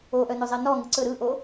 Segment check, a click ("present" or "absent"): present